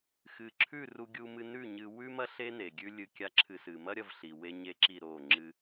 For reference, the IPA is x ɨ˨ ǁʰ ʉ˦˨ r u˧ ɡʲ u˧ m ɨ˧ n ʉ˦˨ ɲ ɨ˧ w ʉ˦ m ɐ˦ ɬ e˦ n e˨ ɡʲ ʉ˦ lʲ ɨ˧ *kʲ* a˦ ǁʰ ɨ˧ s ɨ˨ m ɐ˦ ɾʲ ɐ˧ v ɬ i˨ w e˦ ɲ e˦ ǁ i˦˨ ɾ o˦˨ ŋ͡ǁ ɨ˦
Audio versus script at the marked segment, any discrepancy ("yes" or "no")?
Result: no